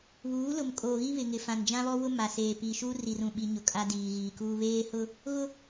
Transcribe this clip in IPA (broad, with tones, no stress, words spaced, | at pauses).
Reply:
βuː˨˦lʊ˨mkʼoː˨ ɣi˦ βɪ˨ŋɪ˨fã˨n d͡ʒã˦βɔ˦wʊ˦ ma˨seː˨ pi˨ʃu˦ ri˨rũ˨ɓi˨ɲʊ˨ kʼa˦diː˨ɣiː˨kuː˦ βeː˦hʊ˦ | ɣʊ˦